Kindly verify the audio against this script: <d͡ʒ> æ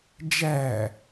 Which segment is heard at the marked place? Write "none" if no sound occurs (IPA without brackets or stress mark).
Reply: d͡ʒ